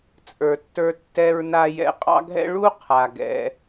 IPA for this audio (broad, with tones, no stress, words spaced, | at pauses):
t͡sʼə˞˨tːə˞˧ tːɛ˧ɹna˧ jɛ̰˧qʼɑ̰˦ɡʱɛ̰˦ ɭu˦qʰa˨ ɡɛ̰˧